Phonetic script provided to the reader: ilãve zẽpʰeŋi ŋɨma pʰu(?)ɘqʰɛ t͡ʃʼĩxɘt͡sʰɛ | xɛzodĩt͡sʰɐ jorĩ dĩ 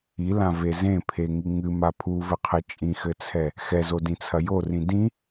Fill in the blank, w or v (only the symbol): v